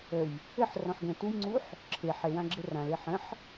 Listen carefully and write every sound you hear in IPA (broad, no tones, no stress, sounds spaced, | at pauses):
ə j | ɘ ħ r ɔ̃ ħ ɡ ə̃ t u j ŋ͡ǀ u ħ | ǁʰ e ħ e w ã ɡ͡ǁ ɘ r ã l e ħ ə̃ ħ